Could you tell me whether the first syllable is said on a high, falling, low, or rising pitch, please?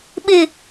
low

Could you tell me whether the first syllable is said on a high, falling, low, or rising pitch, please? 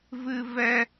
high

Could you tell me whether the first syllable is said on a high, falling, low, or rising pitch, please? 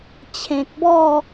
low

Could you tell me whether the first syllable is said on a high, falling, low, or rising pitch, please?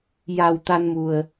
low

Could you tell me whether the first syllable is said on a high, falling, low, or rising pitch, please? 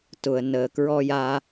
low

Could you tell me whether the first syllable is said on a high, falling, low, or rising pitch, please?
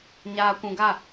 low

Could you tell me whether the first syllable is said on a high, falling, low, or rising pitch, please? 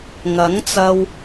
rising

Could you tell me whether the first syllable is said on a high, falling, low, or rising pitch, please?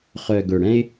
low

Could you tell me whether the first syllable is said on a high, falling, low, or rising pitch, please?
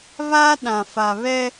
high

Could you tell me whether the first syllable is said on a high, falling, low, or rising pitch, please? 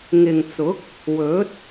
low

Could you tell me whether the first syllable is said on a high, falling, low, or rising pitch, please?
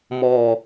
falling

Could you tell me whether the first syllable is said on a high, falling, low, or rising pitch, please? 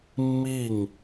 falling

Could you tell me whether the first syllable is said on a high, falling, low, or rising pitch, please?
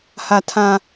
low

